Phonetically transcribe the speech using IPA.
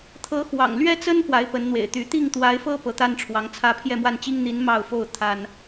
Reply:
t̪ʰ ɤ˧˥ x w ɑ̰˨˩ ŋ l ɥ ɛ˥ t͡s ə˥ n p w a˧˥ ɪ̯ p ə˧˥ n n̪ w ḛ˨˩ ɪ̯ t̪ y˧˥ t̪ i˥˩ ŋ t̪ w a˧˥ ɪ̯ f ɤ˥ p ɤ˧˥ t̪ a˥ n ʈ͡ʂʰ w ɑ˧˥ ŋ t͡sʰ ä˥˧ pʰ j ɛ˥˧ m w a˥˩ n t͡ɕ i˥ ŋ n̪ i˧˥ n m ɑ˥˧ ʊ̯ f o˥˩ ʊ̯ t̪ʰ a˥ n

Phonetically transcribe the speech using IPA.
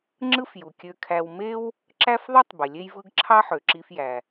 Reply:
ŋ͡ǁ ɯ˥ f j u˩ kʲ ø˧ kʰ æ˧ w m e˥ w | ǁ æ˥ f ðˤ y˥ tˤ b e˩ lʲ e˥ j v ɯ˥ ɡ ǁʰ ɑ˥ ħ ø˩ ǁ i˧ f j æ˩

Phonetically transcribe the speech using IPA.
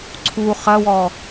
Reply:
ǀʰ u χ ɐ w ɔː

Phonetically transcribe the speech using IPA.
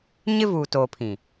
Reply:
ɲ ɪ˦ v uː˨ t oː˨ pʰ ĩ˨

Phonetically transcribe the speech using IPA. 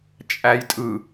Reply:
t͡ʃʼ æ j tʼ ɯ

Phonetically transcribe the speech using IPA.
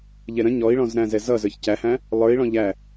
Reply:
ʎ ɛ ɾ ə̃ ɲ ɔ i̯ ɭ ɔ̃ z ɾ æ̃ z ɛ z ʌ z ə˞ ç c æ h æ̃ | lˠ ə˞ i̯ ɭ ɔ̃ ʎ æ

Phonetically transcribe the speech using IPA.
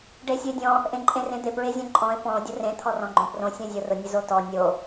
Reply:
ɖ e sʲ ʊ e̯ dʲ ɔ̃ | ʔ ẽ ǃʼ ẽ r ẽ d̪ e p ɹ e zʲ ɔ̃ ǃʼ ɔ̃ e̯ p ɔ̃ o̯ dʲ ʊ r ẽ t̪ʰ ɔ r ɔ̃ ɡ͡ǃ õ p r õ sʲ ɔ̃ zʲ o r ʊ nʲ ʊ z o t ɔ nʲ o

